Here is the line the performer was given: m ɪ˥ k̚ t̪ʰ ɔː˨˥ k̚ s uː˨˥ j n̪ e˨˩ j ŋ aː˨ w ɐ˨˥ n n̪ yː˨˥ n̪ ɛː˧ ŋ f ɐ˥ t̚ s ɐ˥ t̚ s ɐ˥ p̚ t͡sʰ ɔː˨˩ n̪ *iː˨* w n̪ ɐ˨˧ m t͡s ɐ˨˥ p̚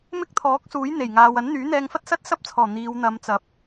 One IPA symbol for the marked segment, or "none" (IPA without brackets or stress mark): iː˨˧